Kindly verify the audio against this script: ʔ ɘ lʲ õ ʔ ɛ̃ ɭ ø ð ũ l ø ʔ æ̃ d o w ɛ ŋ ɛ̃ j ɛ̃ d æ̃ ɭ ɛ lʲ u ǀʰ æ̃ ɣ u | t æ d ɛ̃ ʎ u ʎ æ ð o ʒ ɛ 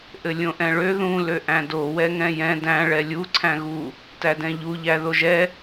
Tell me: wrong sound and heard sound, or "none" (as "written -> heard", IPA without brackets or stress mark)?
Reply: none